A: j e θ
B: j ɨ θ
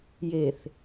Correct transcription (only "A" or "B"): A